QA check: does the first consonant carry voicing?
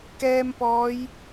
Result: no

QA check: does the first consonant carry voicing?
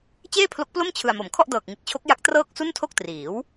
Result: no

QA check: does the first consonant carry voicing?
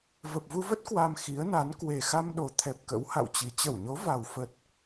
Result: yes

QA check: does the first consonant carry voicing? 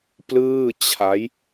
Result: no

